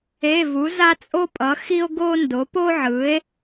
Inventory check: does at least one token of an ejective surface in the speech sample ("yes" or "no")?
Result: yes